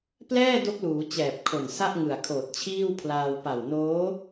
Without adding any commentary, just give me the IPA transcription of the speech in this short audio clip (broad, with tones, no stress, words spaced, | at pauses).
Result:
plɛː˥˩ do˦˥k̚luː˩˦ t͡ɕɛː˨˩p̚kʰo˨˩nsa˥˩ʔ ŋɯ˨˩a̯kʰoː˨˩t̚t͡ɕʰiː˥˩wpʰlaː˧w pa˨˩wnoː˦˥